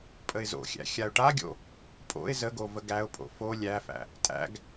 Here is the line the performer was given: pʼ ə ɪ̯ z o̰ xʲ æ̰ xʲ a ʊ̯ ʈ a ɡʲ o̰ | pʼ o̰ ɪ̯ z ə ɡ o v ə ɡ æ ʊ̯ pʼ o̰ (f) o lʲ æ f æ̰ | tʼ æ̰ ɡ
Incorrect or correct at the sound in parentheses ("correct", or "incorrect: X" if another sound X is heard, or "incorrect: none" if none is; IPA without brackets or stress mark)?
correct